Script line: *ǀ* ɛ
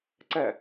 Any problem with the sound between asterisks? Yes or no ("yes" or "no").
no